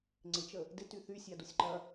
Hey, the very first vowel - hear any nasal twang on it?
no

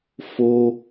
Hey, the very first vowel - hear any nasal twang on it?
no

